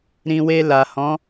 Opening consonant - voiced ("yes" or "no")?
yes